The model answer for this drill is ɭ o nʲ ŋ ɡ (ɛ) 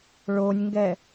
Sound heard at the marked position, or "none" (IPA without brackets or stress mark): ɛ